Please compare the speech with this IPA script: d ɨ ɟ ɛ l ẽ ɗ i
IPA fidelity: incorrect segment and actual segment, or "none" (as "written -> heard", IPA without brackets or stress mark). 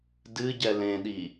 none